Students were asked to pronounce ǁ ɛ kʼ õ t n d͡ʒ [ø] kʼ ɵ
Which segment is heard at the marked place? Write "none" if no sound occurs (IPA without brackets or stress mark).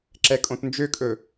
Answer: ø